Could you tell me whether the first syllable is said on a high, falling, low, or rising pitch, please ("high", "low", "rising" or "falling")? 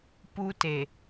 high